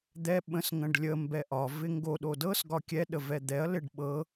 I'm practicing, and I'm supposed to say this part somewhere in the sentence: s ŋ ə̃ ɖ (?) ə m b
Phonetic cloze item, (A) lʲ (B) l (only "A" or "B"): A